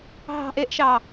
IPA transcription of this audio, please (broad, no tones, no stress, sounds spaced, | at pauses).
ɦ ɑ̤ ʔ e ʔ ʃ ɑ